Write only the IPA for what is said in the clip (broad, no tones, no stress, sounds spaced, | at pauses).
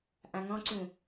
ʔ ã ŋ ɔ̃ ǀ ũ